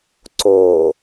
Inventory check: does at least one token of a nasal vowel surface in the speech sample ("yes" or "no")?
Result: no